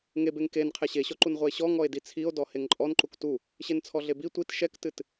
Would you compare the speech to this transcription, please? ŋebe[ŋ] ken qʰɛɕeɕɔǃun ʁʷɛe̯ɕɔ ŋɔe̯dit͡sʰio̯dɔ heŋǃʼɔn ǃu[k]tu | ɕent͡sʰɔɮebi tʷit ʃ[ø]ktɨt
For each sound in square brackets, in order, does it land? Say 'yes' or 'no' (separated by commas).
yes, yes, no